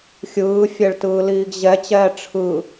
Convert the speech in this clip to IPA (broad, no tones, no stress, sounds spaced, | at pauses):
xʲ ɯː fʲ ɛ ɭ t ɯː l iː ɡ ʑ ɛ t͡ɕ ɛː ʈ͡ʂʰ ɯ